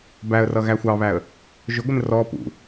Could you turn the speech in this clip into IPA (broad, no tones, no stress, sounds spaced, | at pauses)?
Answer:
b æ ə̯ r ʌ ɣ æ xʷ ɑ β æ ə̯ | ʒ ʊ ɡʷ ɪ n r ɔ p ṵ